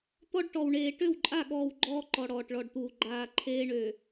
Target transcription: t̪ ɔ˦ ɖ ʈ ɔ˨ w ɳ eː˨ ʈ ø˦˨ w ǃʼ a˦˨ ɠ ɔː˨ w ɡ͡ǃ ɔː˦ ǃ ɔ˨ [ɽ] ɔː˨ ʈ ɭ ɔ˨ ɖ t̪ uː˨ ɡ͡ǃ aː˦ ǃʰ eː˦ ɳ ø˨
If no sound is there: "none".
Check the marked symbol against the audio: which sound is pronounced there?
ɽ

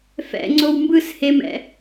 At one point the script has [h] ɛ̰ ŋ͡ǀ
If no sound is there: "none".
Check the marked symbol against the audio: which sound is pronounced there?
f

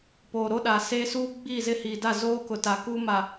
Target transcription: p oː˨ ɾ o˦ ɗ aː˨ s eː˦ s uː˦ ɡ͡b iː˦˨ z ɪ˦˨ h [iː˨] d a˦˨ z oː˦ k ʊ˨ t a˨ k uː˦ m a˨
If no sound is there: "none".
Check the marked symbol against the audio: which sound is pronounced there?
iː˨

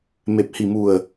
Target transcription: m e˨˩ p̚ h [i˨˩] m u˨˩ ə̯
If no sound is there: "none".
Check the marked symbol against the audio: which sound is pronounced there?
i˨˩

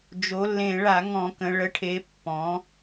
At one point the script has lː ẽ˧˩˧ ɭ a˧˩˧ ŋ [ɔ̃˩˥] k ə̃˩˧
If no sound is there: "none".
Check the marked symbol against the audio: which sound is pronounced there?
ɔ̃˧˩˧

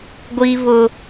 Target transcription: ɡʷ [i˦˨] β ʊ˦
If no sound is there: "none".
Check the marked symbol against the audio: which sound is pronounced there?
i˦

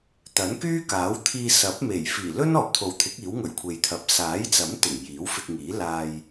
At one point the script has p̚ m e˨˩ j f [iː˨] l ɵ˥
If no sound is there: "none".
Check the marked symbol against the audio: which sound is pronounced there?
iː˨˩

